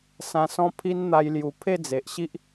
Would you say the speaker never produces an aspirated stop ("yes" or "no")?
no